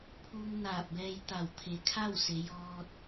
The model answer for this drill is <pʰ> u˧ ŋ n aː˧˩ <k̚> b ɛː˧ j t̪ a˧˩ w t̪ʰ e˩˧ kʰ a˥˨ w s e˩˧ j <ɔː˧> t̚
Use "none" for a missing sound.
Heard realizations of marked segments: pʰ, p̚, ɔː˧

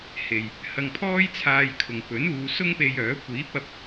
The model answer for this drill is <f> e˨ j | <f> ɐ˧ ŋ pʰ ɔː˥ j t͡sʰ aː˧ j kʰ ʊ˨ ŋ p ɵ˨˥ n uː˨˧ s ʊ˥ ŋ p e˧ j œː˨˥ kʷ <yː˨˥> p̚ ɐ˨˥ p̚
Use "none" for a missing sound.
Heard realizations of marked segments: h, h, iː˨˥

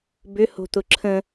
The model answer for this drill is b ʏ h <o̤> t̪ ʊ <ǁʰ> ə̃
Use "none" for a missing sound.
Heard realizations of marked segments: o̤, ǁʰ

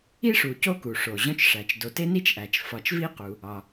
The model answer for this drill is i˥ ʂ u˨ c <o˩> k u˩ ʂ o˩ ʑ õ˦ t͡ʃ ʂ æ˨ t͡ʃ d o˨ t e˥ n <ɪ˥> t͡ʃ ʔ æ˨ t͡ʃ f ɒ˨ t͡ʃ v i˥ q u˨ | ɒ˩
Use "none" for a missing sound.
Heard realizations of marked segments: o˦, i˥

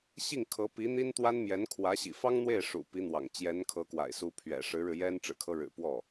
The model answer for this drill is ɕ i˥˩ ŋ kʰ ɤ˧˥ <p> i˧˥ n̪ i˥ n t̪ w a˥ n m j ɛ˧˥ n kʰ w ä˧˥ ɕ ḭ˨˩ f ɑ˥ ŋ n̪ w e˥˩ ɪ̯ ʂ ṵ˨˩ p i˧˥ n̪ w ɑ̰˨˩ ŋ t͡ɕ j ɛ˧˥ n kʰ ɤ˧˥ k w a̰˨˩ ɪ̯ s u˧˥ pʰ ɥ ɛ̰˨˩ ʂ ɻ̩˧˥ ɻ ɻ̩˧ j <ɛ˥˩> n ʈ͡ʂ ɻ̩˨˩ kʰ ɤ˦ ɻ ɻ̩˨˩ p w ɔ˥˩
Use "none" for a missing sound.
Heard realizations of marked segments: p, ɛ˥

